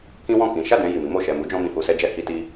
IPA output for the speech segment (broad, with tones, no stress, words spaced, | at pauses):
kĩ˦wɔ̃˦˨kĩ˨˦ ʃa˦˨dɛ̃˧ ji˨mi˨˦mo˦˨ ʃɛ˨mu˨˦d͡ʒɔ̃˧ mĩ˨hu˨sɛ˧d͡ʒɛ˧ hi˧ti˧